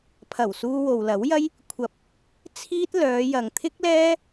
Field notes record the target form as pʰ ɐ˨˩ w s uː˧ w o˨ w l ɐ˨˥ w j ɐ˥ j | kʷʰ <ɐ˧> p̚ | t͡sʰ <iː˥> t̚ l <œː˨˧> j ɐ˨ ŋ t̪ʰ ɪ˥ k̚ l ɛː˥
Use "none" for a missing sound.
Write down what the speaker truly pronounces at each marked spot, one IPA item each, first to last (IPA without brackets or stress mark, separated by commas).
ɐ˨˥, iː˥, œː˨˧